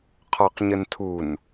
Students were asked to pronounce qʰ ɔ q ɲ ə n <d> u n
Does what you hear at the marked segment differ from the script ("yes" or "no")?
yes